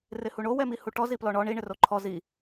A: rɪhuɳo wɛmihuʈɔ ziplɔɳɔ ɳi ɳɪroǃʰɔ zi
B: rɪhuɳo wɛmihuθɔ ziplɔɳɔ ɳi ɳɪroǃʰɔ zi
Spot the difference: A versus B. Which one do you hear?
A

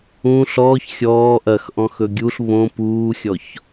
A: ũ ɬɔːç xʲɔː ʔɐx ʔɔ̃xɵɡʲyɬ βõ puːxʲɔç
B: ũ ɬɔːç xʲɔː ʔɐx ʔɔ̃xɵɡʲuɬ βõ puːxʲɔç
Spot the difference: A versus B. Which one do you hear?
B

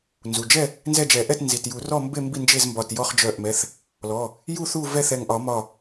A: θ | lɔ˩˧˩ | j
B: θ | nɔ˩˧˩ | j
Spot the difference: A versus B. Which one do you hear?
A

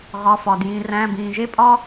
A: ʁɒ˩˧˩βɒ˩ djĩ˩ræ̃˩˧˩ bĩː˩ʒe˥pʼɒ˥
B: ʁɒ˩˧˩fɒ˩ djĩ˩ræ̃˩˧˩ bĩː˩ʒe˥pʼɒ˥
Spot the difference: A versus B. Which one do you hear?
B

